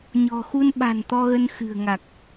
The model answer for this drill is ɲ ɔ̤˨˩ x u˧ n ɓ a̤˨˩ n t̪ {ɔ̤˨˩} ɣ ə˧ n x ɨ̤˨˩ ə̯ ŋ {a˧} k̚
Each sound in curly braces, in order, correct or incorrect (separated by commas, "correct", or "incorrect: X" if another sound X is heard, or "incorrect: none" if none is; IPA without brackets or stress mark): incorrect: ɔ˧, incorrect: a˨˩